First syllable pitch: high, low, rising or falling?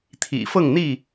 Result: low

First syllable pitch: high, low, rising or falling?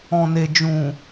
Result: low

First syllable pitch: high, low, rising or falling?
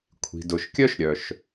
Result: low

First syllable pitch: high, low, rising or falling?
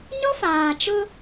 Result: high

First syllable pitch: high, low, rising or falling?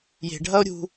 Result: low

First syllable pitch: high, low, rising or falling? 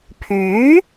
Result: rising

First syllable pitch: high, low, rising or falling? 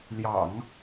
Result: low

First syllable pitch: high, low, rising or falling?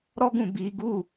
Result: high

